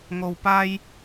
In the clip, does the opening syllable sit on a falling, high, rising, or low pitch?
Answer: high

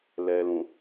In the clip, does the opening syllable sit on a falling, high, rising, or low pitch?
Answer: low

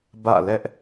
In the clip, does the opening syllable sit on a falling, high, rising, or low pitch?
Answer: falling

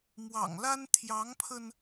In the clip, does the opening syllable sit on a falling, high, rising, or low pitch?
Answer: low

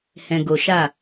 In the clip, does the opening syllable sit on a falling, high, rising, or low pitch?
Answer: low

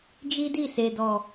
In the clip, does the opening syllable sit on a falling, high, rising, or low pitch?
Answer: high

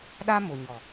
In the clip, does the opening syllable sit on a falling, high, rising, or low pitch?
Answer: high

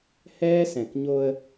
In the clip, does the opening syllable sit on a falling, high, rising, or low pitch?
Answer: high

